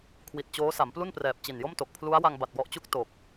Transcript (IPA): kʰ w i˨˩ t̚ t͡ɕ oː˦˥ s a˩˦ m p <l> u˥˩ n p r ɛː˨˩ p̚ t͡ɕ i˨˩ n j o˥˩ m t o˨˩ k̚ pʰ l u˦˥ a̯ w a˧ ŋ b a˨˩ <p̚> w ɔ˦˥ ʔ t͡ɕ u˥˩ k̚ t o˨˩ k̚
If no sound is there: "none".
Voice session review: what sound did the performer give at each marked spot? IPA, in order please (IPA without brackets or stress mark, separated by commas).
l, t̚